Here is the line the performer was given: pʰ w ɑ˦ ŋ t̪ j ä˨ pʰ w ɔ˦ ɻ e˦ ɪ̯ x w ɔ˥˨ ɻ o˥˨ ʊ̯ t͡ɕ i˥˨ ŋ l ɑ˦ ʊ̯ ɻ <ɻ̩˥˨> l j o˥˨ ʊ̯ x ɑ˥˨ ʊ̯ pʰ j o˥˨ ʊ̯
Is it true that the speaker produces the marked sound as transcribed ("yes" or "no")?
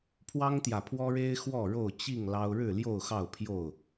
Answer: yes